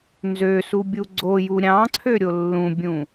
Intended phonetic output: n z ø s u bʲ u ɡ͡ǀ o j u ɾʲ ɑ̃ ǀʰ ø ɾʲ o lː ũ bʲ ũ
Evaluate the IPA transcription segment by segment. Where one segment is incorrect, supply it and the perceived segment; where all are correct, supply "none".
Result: none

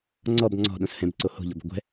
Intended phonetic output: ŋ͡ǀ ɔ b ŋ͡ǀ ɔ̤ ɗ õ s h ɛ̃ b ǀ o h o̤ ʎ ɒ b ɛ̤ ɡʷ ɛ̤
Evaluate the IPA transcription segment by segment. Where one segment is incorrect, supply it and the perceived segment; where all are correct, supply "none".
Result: none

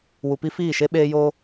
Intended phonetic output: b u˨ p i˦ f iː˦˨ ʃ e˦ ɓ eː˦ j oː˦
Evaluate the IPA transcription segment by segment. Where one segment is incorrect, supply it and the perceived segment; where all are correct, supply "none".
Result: b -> w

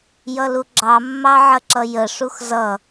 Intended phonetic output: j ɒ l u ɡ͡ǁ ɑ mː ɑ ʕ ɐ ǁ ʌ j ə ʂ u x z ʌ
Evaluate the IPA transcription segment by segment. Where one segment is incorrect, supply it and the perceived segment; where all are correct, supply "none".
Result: ɒ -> ʌ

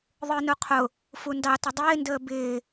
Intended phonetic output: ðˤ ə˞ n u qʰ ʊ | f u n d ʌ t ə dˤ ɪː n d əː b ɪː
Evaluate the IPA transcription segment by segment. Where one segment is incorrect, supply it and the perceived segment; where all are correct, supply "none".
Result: ʌ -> ɑ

